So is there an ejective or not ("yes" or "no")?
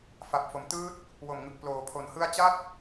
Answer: no